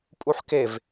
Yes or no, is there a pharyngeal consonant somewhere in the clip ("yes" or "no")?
yes